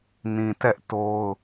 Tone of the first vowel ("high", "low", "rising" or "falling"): low